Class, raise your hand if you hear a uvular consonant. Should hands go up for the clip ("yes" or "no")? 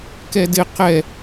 yes